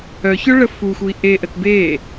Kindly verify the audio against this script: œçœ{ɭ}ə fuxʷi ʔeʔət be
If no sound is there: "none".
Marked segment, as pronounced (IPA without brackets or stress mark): ɭ